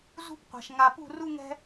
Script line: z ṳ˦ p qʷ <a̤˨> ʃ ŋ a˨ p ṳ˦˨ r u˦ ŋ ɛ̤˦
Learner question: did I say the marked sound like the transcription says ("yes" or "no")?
yes